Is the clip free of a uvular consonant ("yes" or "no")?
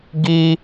yes